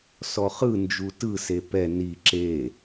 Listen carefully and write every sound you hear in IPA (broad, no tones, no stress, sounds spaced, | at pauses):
s ɔ χ ɯ n d͡ʒ u t ɯ s e p ɛ n i ǁ e